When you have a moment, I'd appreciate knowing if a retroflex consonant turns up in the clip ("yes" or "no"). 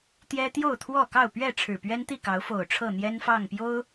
yes